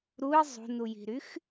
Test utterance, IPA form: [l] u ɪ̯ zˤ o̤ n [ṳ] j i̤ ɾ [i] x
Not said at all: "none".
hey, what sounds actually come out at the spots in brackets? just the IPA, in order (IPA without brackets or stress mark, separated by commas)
ɾ, u, y